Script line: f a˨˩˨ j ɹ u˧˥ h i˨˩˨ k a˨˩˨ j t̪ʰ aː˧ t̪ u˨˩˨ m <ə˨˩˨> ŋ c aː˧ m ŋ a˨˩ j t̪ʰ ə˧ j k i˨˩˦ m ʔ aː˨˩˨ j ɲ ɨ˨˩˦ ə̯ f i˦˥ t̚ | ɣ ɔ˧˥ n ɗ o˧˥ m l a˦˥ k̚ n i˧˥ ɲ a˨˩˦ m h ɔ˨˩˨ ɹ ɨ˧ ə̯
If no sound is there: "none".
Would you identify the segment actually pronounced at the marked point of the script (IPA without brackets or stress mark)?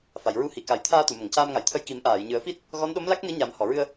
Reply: ə˨˩˨